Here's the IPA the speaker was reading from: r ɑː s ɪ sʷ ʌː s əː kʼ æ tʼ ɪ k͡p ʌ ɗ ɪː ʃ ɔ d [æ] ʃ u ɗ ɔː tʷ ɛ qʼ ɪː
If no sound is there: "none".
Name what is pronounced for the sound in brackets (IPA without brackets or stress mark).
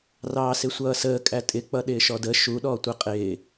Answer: ə